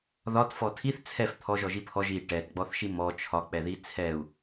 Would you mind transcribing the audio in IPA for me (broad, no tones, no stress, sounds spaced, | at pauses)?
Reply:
ð ɒ t f ɔ tʰ i θ t͡sʰ ɛ f t̪ʰ ɔ ʒ ɔ ʒ i pʰ ɔ ʒ i ʈ ɛ t ɡ͡b ɔ θ ʃ i m ɔ t͡ʃʰ ɒ k͡p ɛ ð i t͡sʰ ɛ u̯